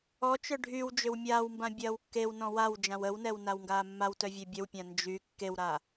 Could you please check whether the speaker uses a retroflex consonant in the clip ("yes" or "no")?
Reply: yes